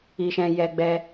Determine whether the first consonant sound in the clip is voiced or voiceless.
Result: voiceless